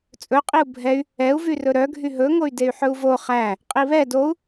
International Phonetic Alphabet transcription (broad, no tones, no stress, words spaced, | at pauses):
t͡sʼɵqʼiu̯ bʱɛy̯ | ɛu̯vyrɵ ɾœɡʱy ɦɵŋoy̯ dey̯ħɵu̯vo χæ | qʼiβɛ dou̯